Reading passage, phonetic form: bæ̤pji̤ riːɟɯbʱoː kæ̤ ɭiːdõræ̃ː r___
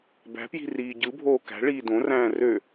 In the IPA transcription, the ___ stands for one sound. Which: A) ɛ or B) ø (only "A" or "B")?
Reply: B